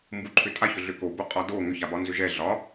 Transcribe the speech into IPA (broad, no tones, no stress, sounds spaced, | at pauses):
m b u ǃʰ ʏ tʼ a ç ʏ ɮ ʏ k o b o qʼ ɒ d o ŋ ʏ ç a b ɒ n z ʏ ʒ ɛ ɮ ɒ